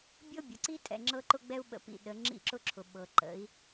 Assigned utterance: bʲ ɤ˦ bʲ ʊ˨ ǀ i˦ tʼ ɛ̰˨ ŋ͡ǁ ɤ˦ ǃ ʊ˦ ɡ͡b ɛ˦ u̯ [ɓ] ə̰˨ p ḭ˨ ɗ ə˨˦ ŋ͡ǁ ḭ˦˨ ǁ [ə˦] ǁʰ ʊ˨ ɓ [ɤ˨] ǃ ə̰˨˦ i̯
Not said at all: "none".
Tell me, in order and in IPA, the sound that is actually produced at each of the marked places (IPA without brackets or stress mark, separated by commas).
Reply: ɓ, ʊ˦, ɤ˨